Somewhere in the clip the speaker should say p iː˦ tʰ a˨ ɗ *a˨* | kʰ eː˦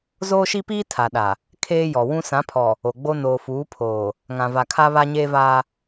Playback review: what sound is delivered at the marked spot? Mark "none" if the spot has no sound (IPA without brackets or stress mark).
a˨